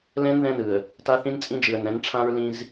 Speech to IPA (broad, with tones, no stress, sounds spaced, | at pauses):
l ɛ̃˦ n ð ɛ̃˦ n ɯ˨ ə̯ | t a˦ θ ĩ˦ n t͡sʼ ĩ˦ d͡ʒ ɯ˨ ə̯ n ɛ̃˨˦ n ʈ͡ʂʰ ã˦ ɹ l ĩ˦ z